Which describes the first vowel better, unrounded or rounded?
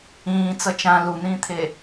unrounded